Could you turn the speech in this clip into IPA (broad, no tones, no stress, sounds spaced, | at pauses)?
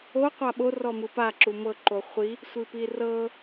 o qʷ a ɓ o r ɔ m ɯ p a ǁ u m ɤ ǃ o χʷ i | sʷ i p i r ɤ